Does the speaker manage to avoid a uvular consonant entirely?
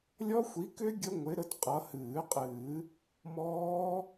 no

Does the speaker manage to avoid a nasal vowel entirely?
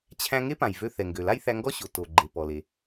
no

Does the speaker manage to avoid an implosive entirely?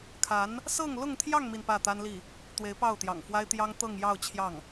yes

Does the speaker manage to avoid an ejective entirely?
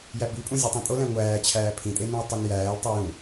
no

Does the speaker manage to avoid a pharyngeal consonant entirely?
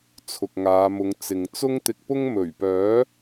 yes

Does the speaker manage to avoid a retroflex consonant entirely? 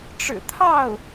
no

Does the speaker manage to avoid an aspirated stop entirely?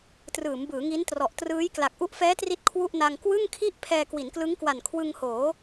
no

